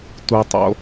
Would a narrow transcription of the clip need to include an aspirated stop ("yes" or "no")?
no